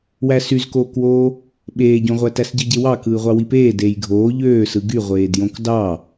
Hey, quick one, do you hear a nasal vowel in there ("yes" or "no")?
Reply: yes